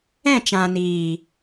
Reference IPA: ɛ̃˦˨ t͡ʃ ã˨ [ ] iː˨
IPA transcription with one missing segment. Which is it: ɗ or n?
n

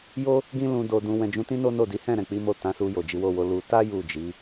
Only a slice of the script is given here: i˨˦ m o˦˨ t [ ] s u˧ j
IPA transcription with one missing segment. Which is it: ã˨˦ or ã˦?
ã˨˦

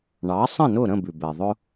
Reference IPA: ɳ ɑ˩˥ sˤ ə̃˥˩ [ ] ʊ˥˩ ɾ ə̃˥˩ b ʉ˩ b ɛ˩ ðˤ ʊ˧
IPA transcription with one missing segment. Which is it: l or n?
n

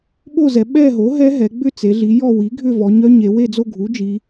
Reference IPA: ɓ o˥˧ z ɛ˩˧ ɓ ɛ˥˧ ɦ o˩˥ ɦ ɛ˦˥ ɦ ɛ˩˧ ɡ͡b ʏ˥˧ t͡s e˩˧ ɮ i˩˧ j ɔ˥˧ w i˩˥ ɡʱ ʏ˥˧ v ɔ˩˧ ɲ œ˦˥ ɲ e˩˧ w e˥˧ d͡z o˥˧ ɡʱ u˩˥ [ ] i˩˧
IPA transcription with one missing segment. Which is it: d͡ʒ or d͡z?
d͡ʒ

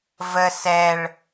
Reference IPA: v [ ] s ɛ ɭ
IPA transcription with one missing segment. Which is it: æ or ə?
ə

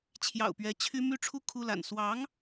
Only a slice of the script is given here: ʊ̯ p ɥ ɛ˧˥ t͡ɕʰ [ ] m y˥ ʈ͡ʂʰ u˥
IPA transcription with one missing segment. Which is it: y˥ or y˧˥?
y˥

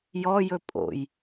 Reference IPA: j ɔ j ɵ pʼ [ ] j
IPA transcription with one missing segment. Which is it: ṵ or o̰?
o̰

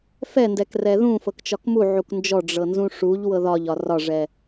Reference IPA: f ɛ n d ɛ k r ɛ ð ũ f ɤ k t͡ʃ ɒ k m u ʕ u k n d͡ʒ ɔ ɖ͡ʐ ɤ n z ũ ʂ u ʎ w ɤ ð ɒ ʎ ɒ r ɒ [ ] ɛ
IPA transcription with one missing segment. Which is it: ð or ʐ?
ʐ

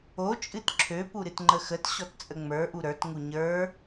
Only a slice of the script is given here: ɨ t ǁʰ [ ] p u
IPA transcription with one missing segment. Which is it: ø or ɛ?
ø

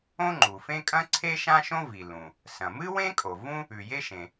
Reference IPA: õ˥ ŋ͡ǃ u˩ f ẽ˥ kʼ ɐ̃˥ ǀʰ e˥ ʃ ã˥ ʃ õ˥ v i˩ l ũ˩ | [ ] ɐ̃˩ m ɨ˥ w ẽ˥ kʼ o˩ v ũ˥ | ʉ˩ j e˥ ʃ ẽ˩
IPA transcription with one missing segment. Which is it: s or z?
s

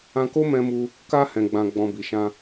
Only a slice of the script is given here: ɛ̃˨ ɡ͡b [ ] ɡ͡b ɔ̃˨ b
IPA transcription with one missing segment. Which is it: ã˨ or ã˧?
ã˨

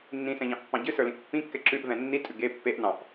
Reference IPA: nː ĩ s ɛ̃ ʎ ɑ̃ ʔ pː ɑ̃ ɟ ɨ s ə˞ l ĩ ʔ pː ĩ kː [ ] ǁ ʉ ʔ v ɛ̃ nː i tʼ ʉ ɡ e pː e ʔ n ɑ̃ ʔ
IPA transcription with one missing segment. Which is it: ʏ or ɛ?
ɛ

